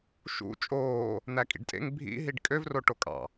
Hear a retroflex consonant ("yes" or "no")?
yes